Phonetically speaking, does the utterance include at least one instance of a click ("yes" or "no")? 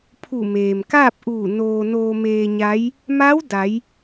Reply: no